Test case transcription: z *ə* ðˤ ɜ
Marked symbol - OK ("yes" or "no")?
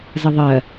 yes